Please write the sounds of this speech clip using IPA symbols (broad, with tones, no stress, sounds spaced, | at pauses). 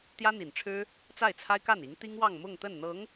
t̪ j ä˥ n̪ i˨˩ n ʈ͡ʂʰ ɻ̩˥ | t͡s a˥˩ ɪ̯ t͡sʰ a˥ ɪ̯ k a˥˩ n i˧˥ ŋ t̪ i˥ ŋ w ɑ˥˧ ŋ m ʊ˥˧ ŋ t̪ ə˥˩ n n̪ ɤ˧˥ ŋ